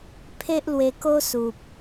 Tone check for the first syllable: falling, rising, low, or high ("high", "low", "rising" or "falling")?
high